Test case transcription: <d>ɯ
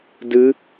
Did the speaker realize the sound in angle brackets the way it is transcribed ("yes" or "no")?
yes